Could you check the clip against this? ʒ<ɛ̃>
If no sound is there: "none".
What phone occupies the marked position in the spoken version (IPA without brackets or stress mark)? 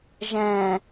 ɛ̃